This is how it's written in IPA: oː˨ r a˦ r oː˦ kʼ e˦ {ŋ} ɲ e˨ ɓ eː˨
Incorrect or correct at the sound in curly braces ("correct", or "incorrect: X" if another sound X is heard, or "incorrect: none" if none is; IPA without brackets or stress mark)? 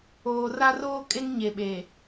correct